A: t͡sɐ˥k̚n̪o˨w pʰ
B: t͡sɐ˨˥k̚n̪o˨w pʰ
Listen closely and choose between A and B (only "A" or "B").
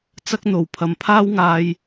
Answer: A